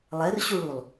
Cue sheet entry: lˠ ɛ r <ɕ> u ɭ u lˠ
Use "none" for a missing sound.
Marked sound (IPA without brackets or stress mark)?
ɕ